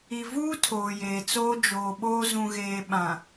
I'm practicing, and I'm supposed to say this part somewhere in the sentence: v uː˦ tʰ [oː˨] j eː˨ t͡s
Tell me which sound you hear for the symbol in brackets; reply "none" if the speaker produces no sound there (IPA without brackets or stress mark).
oː˨